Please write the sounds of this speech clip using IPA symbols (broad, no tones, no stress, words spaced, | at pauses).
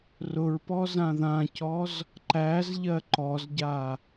rʊɹpɔ zãðãcɔz | ǃæzʎɜ ǃɔzɟa